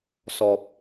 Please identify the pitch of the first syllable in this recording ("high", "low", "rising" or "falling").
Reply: low